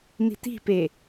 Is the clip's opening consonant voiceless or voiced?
voiced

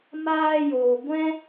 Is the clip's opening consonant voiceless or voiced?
voiced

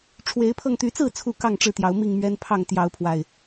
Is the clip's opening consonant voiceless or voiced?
voiceless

